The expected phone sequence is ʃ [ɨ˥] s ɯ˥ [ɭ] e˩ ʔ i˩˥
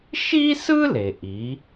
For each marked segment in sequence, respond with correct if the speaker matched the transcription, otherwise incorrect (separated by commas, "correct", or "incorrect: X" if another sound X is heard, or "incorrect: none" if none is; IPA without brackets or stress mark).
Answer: incorrect: i˥, incorrect: l